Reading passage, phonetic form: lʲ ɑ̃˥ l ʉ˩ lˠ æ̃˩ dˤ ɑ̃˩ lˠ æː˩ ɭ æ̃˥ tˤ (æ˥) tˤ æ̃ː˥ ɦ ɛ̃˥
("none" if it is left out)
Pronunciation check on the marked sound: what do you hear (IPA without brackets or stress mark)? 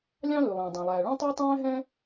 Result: æ˥